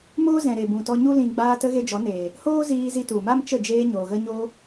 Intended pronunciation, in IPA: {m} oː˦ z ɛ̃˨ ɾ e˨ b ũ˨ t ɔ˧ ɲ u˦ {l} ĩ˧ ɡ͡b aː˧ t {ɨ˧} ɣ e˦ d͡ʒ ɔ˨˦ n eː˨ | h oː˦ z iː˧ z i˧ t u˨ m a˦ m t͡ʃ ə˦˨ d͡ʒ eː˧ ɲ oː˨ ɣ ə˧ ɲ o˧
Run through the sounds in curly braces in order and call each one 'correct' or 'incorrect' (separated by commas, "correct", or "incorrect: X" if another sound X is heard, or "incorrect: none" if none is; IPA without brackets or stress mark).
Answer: correct, correct, incorrect: ə˧